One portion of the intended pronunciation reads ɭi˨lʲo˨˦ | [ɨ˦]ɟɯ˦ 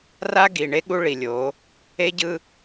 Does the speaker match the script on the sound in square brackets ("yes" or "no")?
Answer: no